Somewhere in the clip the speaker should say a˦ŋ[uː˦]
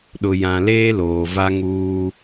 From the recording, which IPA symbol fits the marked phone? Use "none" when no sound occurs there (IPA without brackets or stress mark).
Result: uː˦